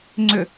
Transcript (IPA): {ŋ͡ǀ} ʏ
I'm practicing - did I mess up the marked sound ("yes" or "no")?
no